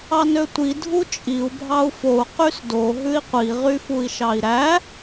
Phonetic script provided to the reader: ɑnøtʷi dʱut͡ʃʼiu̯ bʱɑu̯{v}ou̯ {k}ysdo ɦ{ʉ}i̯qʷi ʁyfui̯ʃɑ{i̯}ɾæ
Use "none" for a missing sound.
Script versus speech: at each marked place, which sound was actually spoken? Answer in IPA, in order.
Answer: f, q, ʉ, i̯

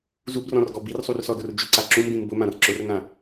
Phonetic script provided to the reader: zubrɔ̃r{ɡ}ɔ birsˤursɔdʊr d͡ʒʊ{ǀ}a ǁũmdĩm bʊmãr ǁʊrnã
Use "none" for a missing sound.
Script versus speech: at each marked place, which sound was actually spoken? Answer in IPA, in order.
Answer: ɡ, ǀ

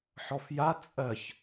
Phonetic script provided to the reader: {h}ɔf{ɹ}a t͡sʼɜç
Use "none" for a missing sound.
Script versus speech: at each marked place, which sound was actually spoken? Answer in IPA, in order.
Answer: ħ, j

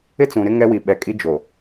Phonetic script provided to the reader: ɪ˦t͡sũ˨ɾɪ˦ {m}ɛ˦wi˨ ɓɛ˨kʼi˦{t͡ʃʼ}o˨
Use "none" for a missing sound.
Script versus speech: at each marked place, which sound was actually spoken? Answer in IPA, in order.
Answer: ŋ, d͡ʒ

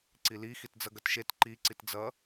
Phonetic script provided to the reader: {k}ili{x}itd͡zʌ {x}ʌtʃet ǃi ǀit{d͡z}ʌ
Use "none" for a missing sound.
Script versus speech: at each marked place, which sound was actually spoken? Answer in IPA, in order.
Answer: ǀ, x, ɡ, d͡z

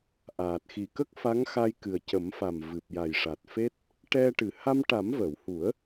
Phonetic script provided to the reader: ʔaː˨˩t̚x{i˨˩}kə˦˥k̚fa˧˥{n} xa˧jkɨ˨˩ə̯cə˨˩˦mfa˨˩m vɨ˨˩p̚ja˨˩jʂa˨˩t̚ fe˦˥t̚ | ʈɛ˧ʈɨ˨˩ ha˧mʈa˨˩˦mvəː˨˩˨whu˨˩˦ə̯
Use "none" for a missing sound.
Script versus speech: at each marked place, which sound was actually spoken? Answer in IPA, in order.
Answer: i˨˩, ŋ

